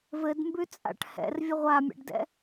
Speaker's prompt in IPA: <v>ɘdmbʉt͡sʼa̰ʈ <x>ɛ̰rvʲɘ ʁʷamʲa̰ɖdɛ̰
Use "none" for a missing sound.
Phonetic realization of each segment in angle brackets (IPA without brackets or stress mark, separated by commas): v, h